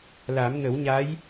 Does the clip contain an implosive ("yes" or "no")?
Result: no